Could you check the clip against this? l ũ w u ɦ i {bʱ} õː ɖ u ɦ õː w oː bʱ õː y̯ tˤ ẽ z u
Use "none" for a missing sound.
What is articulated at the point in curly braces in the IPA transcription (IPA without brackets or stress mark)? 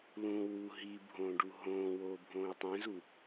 bʱ